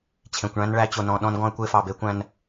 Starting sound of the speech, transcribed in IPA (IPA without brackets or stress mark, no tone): t͡ɕʰ